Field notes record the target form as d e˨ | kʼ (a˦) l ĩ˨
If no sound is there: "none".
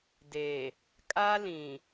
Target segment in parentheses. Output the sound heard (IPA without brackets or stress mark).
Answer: a˦